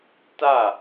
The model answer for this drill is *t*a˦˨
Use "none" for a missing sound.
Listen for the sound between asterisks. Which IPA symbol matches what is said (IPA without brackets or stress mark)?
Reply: t